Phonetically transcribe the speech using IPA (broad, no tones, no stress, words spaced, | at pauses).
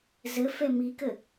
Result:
zə fɛmikə